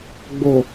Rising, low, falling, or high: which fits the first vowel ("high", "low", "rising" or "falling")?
low